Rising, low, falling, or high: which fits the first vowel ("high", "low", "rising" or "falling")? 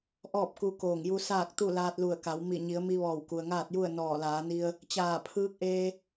falling